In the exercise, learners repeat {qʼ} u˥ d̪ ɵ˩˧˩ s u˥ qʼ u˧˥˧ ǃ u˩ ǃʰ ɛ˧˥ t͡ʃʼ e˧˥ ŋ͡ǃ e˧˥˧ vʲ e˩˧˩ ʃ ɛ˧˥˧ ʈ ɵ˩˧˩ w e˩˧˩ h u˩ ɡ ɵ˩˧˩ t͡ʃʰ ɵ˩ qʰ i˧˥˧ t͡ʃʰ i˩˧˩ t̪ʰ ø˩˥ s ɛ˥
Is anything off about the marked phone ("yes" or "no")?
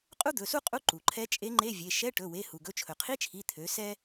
no